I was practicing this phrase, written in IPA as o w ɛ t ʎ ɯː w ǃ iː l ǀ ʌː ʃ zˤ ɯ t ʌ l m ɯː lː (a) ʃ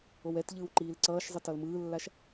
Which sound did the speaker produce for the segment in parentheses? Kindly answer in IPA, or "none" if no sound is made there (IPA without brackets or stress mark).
a